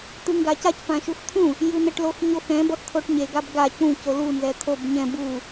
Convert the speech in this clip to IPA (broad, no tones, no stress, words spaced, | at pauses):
t̪ɯŋɡacac pãʃuxt̪ʰũ | jɯn̪ɛʈloxɲox ɛ̃ bʌxt̪ʰoʈɲe ɡabɡa cũ colu nzɛt̪ʰob ɲɛ̃ bu